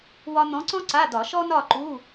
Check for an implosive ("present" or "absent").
absent